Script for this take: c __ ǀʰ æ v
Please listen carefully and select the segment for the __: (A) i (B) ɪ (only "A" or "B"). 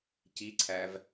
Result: A